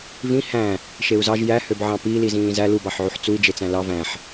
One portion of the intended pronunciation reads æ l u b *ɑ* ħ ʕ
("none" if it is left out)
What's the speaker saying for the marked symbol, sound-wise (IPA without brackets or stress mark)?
ɑ